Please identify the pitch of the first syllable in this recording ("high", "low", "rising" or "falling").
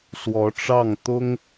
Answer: rising